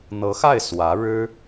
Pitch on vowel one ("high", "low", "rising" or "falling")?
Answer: rising